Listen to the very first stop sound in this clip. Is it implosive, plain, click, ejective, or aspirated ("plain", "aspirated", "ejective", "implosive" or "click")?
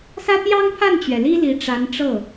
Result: plain